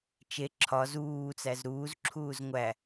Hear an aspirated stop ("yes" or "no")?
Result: yes